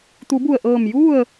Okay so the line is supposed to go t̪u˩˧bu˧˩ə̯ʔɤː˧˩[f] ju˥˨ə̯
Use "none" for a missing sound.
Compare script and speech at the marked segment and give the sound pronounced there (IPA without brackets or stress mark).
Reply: m